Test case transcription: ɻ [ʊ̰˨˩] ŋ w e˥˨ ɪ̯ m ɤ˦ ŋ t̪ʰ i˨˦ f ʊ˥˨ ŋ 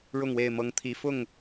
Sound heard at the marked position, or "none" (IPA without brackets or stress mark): ʊ˥˨